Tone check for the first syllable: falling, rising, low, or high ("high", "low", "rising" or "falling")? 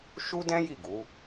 high